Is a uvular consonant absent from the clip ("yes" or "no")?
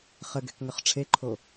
no